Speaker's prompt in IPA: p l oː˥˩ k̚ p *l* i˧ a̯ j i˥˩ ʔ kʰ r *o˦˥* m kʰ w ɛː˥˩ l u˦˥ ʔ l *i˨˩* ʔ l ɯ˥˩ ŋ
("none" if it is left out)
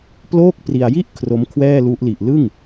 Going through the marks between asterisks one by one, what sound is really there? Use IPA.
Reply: r, o˦˥, i˨˩

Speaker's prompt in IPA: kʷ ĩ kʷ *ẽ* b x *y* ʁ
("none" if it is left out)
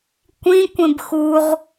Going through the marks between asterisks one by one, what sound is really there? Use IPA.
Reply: ẽ, u

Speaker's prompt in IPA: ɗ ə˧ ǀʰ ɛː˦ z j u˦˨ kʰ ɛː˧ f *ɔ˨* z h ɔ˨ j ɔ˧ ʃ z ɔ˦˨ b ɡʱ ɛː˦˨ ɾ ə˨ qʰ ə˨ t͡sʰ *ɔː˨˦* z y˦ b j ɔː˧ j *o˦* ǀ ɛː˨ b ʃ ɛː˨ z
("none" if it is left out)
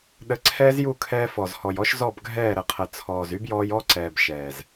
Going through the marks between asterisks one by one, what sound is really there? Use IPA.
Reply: ɔ˨, ɔː˨, ɔ˦

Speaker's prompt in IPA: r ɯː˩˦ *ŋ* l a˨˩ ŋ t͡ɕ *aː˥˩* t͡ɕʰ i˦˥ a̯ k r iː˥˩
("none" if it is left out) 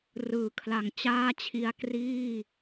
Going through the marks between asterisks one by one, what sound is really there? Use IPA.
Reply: kʰ, aː˥˩

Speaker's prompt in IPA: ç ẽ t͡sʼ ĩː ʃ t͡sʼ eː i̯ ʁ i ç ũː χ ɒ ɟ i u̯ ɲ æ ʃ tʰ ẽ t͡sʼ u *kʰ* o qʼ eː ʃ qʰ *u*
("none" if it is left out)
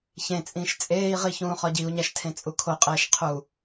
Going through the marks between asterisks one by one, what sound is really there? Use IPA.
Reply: kʰ, u

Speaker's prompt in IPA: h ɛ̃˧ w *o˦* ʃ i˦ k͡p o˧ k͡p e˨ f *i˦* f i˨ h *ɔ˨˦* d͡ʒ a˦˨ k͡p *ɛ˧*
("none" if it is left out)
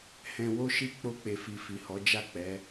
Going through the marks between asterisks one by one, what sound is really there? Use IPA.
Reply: o˦, i˨, ɔ˨˦, ɛ˨˦

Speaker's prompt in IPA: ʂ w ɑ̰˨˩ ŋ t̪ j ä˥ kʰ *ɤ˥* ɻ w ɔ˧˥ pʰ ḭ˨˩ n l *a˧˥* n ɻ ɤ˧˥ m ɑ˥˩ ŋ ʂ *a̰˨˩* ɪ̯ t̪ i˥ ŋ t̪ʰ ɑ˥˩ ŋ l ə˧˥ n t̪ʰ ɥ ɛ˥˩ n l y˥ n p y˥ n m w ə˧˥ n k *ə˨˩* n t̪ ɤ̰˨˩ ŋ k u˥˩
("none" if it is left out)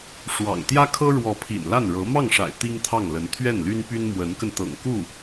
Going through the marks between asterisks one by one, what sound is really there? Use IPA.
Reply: ɤ˥, a˥˩, a̰˨˩, ə˧

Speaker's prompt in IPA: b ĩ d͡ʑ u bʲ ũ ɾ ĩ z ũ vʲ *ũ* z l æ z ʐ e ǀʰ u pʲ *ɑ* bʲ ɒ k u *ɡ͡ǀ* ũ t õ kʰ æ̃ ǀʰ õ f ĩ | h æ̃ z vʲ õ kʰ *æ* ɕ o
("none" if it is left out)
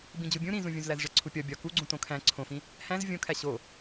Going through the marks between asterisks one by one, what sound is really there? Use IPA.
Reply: ũ, ɒ, ɡ͡ǀ, æ

